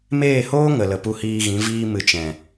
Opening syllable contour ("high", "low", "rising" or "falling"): falling